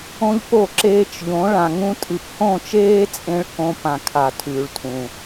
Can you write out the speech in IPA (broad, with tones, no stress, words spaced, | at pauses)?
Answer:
õ˦ʎpo˦˨ ǁeː˧t͡ʃʎõ˨˦ ɭã˨ŋũ˧tʼɨ˨p hõ˦˨t͡ʃeː˦t͡sʼẽ˧ɭ kõ˧ pã˨kʰa˨ tʰʉː˨ɭtʰũ˨